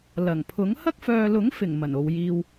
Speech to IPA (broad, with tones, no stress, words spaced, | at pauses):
lɐ˨˩ŋpʰʊ˨˥ŋ hɐ˥k̚fœː˨lʊ˨˥ŋfɪ˨˩ŋ mɐ˨˩no˨wjiː˧w